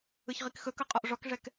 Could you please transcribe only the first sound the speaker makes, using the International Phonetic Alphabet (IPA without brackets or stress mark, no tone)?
ɯ